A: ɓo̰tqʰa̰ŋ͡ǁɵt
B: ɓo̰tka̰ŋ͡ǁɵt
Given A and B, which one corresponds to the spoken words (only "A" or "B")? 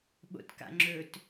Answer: B